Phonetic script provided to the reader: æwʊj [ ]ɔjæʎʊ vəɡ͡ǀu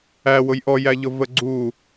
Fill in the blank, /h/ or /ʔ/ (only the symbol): ʔ